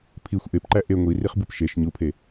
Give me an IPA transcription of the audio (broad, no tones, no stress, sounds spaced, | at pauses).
pʰ i xʷ ʔ e p ǃ æ ʔ e ŋʷ i r i χ b u p ʃ e ʃ ɲ u pʰ e